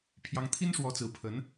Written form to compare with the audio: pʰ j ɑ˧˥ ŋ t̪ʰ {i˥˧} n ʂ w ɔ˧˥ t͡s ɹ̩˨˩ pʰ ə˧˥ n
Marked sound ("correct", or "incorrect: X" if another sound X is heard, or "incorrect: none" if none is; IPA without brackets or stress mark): incorrect: i˥